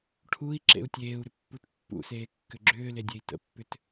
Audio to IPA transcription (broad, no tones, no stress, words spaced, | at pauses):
ʈʰui̯ ǁḛu̯tʲeːu̯ɾʏ pːutpːṵseː kːʏɡ͡ǁʏːle dʲei̯tə̰pːʏt